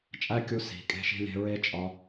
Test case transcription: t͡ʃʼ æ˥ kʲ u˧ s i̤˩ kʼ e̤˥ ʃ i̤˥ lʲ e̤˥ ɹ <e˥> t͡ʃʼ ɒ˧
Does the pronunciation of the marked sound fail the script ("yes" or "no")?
no